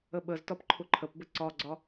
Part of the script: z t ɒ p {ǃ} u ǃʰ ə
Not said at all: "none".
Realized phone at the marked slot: ǃʰ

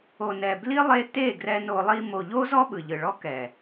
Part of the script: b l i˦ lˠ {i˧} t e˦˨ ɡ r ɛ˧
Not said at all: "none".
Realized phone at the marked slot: e˧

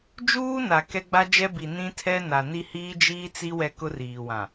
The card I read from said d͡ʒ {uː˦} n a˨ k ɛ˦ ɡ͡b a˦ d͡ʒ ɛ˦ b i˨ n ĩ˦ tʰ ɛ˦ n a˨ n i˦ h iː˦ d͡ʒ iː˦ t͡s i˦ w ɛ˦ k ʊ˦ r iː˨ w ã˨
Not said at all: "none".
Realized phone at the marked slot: uː˦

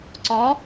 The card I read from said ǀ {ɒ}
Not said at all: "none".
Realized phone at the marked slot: ɒ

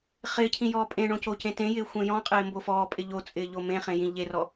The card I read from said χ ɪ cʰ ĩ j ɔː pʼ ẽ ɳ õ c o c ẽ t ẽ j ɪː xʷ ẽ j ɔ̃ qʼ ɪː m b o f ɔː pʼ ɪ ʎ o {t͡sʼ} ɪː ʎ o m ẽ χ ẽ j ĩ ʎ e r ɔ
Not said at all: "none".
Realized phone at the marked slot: t͡sʼ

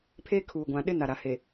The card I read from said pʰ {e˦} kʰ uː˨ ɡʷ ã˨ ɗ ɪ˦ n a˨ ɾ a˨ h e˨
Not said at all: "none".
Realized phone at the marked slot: e˦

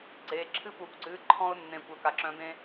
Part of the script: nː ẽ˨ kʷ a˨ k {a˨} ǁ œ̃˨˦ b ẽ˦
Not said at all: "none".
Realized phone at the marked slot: a˨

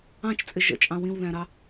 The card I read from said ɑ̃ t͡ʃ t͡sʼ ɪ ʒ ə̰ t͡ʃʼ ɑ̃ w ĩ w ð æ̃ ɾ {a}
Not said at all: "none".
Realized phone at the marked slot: ɑ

